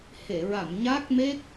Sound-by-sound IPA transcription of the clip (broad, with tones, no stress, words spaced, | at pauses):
he˨˩˨ɹa˨˩˨m ɲa˦˥k̚me˦˥k̚